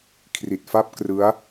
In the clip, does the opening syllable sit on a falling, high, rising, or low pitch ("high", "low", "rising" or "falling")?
low